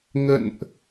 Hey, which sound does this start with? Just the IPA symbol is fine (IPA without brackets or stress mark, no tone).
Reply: ŋ